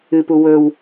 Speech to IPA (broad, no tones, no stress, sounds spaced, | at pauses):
ɨ p u w ɵ w